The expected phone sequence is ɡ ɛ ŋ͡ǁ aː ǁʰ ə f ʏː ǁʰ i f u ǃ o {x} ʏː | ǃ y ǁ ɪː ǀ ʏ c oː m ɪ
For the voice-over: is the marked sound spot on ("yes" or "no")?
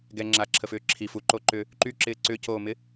no